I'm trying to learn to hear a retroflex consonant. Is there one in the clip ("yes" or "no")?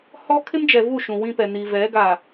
no